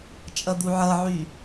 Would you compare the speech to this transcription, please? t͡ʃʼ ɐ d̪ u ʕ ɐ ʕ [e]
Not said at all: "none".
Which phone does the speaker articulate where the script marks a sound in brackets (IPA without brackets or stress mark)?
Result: y